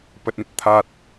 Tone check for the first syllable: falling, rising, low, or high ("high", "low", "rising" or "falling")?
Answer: low